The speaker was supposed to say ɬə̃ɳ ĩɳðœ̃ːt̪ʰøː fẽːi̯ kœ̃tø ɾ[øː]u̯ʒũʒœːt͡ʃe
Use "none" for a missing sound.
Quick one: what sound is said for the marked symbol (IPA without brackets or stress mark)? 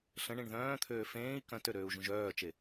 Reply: øː